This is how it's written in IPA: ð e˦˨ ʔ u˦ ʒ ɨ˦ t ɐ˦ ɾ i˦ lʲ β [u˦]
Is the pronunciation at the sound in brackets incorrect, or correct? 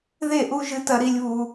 correct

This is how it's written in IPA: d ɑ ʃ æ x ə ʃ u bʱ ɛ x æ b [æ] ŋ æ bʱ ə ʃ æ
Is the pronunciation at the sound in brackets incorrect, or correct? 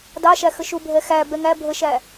incorrect: ɛ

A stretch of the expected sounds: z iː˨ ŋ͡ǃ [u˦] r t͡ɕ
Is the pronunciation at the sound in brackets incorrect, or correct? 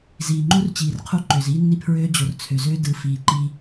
correct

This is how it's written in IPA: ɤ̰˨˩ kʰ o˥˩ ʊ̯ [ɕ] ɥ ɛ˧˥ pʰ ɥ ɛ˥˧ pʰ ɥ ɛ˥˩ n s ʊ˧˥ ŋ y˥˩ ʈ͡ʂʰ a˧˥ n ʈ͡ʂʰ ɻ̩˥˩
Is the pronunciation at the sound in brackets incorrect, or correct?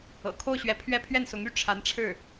correct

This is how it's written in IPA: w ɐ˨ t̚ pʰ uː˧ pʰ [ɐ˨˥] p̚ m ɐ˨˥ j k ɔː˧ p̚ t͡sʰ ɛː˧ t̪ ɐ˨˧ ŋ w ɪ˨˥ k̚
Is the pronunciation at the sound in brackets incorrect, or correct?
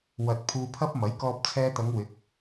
incorrect: ɐ˥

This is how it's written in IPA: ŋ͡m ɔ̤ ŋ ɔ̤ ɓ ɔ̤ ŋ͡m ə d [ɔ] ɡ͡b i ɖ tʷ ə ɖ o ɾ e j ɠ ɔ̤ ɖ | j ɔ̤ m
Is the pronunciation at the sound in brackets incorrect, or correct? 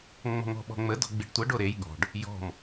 incorrect: ɔ̤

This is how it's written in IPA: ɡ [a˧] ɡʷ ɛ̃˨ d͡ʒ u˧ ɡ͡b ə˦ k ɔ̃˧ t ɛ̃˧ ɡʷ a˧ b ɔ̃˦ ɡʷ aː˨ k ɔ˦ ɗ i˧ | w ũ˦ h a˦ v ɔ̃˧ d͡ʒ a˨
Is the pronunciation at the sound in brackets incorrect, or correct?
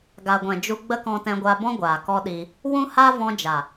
incorrect: a˨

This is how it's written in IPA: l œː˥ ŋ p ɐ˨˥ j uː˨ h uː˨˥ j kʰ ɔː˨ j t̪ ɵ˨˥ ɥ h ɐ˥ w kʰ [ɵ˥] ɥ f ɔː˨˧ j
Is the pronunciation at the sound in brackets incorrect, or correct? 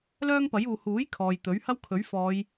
incorrect: ɵ˨˥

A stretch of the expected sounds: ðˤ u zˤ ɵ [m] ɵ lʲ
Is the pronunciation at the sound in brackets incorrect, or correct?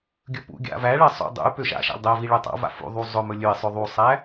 correct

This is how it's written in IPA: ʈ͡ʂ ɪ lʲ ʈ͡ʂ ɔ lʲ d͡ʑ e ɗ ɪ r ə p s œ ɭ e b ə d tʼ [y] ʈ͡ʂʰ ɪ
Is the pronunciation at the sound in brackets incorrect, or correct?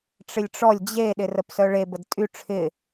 correct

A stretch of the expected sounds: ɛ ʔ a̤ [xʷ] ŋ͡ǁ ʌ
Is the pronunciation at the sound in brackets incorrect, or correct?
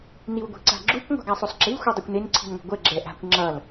incorrect: kʷ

